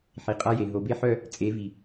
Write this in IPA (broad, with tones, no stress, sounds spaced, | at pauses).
ħ i˨ qʼ a˦ j e˨ ɦ o˨ b e˦ ħ œ˦˨ | t͡sʼ e˨˦ v i˨